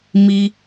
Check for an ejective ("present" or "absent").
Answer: absent